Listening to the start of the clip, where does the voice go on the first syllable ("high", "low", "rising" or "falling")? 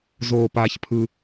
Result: low